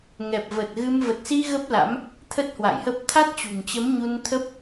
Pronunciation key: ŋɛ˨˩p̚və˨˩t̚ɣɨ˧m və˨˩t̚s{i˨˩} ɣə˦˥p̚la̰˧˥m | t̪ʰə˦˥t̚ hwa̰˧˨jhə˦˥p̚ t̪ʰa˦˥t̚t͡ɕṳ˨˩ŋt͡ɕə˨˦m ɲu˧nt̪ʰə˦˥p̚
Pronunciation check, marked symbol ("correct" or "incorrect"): incorrect